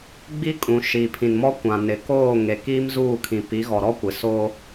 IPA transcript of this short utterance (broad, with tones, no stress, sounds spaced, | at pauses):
ɡ͡b i˦ kʼ ũ˨ ʃ i˨ pʰ ĩ˨ n m ɔ˦ kʷ ã˨ n ɪ˨ k oː˦˨ ŋ e˨ k iː˦ m z uː˦˨ kʰ ĩ˨ p i˨˦ ɣ ɔ˨ ɾ ɔ˦ kʷ ɪ˨ s oː˦